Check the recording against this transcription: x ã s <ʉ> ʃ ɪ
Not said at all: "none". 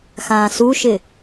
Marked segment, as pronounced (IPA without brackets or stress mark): u